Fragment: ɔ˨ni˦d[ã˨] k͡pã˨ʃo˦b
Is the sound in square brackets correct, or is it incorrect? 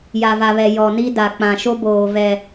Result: incorrect